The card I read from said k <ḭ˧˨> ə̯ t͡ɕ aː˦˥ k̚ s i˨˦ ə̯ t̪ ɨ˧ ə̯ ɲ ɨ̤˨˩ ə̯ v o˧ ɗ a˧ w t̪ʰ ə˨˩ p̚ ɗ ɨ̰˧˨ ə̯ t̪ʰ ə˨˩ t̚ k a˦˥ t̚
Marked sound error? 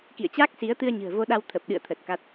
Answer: no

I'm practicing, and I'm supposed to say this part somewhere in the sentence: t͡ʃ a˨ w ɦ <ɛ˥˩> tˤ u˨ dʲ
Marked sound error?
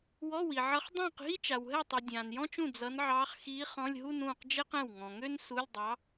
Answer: no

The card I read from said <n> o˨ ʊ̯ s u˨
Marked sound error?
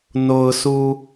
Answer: no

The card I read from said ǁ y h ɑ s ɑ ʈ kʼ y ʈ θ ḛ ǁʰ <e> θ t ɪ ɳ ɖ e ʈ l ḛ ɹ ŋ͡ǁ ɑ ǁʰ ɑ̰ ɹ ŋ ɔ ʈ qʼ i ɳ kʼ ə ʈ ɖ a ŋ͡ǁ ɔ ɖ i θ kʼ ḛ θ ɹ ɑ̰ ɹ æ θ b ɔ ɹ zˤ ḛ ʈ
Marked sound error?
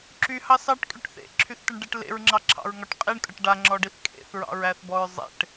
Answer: yes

